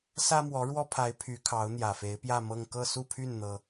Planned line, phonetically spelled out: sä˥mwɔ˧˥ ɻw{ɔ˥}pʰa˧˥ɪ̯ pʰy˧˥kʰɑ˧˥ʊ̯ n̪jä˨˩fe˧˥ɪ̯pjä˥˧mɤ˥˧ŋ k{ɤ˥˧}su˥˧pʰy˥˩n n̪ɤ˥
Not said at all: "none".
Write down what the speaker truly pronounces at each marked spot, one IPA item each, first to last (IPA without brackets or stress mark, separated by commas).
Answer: ɔ˥, ɤ˥˧